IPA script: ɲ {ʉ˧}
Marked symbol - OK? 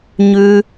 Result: yes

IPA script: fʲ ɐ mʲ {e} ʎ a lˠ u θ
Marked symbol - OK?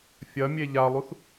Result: yes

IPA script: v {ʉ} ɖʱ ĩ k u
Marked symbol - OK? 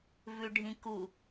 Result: yes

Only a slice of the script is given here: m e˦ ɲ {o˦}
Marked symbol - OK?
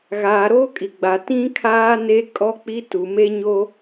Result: yes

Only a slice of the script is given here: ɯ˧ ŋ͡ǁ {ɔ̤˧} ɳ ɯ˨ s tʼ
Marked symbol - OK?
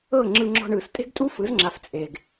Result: yes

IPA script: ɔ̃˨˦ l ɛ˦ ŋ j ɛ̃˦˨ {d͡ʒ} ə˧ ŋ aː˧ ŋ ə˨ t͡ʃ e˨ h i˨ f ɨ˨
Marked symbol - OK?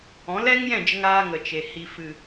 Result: yes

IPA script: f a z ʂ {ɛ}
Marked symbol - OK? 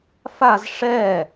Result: yes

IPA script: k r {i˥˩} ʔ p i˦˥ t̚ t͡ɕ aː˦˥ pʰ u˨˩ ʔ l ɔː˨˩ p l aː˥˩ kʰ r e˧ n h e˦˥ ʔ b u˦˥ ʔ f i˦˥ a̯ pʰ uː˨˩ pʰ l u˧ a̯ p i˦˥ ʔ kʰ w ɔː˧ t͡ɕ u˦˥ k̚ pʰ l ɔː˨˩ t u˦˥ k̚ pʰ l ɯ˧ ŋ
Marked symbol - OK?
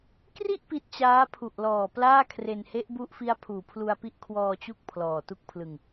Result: yes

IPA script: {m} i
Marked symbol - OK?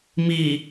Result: yes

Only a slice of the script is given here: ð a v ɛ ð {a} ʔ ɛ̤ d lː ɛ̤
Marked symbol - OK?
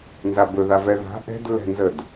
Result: no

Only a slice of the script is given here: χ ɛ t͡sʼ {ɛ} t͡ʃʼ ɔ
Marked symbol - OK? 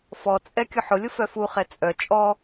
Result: no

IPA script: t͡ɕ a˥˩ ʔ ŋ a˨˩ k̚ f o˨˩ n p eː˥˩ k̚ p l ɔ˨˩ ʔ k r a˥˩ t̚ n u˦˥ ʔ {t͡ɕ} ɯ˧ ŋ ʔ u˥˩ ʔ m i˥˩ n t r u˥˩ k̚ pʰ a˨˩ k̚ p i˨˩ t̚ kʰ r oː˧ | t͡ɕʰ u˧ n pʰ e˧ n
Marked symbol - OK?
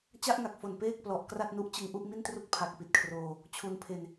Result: yes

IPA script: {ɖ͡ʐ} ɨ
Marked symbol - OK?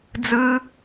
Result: no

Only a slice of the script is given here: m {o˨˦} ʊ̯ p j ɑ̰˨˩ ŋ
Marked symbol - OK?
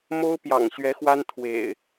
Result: no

